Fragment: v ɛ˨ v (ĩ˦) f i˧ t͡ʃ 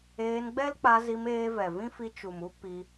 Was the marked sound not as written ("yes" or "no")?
no